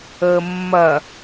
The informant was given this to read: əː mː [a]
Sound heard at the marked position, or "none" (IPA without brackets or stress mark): ɐ